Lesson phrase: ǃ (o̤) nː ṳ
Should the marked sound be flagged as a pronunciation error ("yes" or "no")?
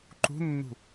yes